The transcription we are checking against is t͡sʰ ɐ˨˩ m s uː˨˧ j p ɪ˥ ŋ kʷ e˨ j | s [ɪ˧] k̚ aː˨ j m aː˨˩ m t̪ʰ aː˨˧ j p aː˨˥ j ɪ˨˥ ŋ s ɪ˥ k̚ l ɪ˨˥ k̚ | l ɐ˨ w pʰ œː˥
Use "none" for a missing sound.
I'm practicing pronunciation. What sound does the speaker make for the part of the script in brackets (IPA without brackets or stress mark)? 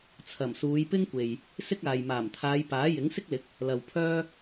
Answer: ɪ˥